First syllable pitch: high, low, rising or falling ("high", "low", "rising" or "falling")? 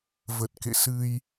low